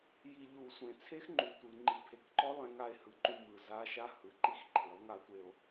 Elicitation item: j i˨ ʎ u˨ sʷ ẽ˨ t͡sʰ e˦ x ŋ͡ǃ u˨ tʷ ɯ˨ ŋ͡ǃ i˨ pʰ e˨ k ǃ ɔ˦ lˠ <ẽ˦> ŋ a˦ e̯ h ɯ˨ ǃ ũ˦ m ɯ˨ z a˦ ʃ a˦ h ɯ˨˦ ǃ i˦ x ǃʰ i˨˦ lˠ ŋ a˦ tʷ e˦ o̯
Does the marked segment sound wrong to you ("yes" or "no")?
no